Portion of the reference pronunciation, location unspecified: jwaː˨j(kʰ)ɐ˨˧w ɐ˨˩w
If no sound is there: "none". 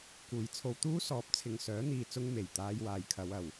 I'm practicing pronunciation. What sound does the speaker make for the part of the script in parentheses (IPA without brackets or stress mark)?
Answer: kʰ